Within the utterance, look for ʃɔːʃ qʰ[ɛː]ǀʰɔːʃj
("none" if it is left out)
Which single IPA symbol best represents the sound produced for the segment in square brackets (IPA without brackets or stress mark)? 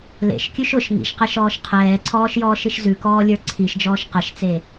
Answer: ɛː